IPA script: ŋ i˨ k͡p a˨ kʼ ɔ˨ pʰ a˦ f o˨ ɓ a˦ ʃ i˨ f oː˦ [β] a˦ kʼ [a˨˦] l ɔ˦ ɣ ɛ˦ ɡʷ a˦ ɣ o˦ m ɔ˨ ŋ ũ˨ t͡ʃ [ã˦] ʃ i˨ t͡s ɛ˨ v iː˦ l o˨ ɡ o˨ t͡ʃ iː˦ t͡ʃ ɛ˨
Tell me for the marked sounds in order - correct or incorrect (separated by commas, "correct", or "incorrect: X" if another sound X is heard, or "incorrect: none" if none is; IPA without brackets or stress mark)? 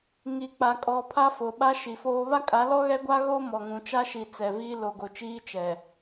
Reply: correct, correct, incorrect: a˦